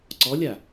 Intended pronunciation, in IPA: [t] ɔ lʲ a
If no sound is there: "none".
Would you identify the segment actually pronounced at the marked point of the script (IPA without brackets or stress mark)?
ǀ